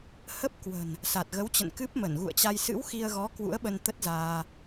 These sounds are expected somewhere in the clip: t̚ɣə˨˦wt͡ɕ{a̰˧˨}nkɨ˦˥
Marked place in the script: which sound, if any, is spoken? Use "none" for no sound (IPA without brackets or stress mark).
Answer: ə̰˧˨